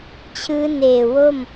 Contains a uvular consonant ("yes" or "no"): no